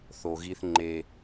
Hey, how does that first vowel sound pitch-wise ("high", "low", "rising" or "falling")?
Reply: low